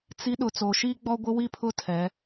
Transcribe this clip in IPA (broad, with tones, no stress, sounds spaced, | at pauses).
t͡s i˨˦ ɗ ʊ˨ t͡s o˨ ʃ iː˦ ɡ͡b ɔ˦ ɡʷ ɪ˦ w i˦ pʰ ʊ˦˨ tʰ ɛ˨˦